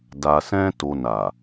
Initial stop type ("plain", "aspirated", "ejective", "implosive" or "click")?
plain